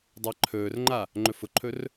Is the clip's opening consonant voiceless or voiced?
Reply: voiced